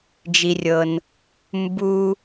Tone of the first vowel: low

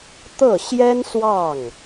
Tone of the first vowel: falling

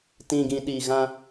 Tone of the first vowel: low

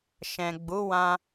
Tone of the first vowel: low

